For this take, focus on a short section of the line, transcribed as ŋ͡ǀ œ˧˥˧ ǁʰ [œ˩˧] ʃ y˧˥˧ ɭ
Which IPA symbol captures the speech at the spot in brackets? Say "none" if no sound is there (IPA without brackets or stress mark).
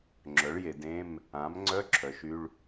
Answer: œ˩˧